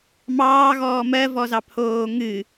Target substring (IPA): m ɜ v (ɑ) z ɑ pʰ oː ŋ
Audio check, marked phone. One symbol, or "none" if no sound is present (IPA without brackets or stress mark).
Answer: ɔ